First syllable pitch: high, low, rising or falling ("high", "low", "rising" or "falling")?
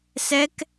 high